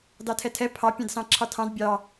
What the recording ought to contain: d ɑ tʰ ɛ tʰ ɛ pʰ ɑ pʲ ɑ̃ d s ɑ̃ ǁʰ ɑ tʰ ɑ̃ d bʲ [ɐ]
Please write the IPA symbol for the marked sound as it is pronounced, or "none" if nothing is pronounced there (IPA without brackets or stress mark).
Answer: ɑ